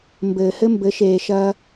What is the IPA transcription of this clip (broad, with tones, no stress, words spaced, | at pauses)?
mbɘː˨hɘ˦mbɘ˨˦ ʃeː˨ʃɐː˧